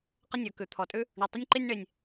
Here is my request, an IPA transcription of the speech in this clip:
q ə˥ nʲ ə˞˩ k ʉ˩ t̪ʰ ɔ˩ tʼ ʉ˥ | ɳ ʉ˩ tˤ ə˥ nʲ ǃ i˥ nʲ ɳ e˩ nʲ

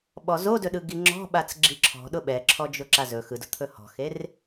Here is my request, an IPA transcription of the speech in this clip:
ɓ ɔ z o d ɵ ɗ ɯ ɡ i ŋ͡ǁ ɔ̤ ɓ a t͡s ɡ͡ǁ i ǁʰ ɔ̤ ɗ ʊ ɓ ɛ ǁʰ ɔ d͡ʒ ʊ ǁ a z ɵ x ɯ d ʊ t̪ʰ ɵ h ɔ̤ x e r

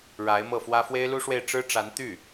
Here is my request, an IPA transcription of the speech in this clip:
ɻ a˧˥ ɪ̯ m ɤ˥˩ f w ä˥ f w e˥ ɪ̯ l u˥ ʂ w e˥˩ ɪ̯ ʈ͡ʂ ɻ̩˥ ʈ͡ʂ a˧˥ n t̪ y˥˩

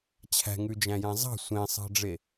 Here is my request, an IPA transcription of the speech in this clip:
t͡ɕʰ æ̤ ŋ ʉ d͡ʒ æ̃ j æ̃ zˤ ɑ̤ sʷ ẽ sˤ ɑ̤ ɖ͡ʐ e

